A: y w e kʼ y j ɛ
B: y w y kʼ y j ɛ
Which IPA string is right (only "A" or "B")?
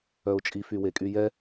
A